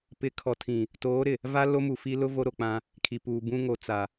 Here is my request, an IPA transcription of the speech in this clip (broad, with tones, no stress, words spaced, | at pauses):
pɪ˨˦kʰɔ˨tʰĩ˨ | toː˨˦ɾɪ˨ | va˦ lo˦mu˨fi˦ lʊ˦ vo˦ɾo˨k͡pã˦ | kʰi˨puː˨bũ˦ŋo˨˦ t͡sa˨